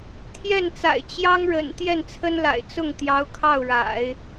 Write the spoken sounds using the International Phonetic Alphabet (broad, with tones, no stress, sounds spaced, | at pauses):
t̪ʰ j ɛ˥˩ n t͡s a̰˨˩ ɪ̯ t͡ɕ j ɑ˥ ŋ ɻ ə̰˨˩ n t̪ j ɛ˥˩ n t͡sʰ ə˥ n l a̰˨˩ ɪ̯ t͡s ʊ˥˩ ŋ t̪ j ɑ˧˥ ʊ̯ kʰ ɑ˥˩ ʊ̯ ɻ a̰˨˩˦ ɪ̯